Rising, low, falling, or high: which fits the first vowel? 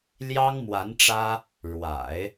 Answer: high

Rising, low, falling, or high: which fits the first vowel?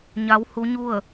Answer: rising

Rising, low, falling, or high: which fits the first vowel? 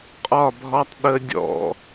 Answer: falling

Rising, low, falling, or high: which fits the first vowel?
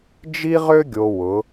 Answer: high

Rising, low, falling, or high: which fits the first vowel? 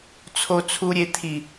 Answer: low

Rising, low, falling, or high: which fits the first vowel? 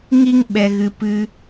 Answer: high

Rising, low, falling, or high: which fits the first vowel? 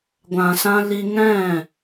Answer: low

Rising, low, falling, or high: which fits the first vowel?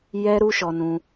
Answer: high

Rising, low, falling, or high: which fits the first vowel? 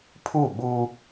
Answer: falling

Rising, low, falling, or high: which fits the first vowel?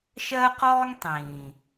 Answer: high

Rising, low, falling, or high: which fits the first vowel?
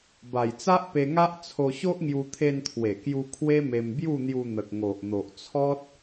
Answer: low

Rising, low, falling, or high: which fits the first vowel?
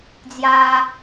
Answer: high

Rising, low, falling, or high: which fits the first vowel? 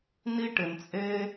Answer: high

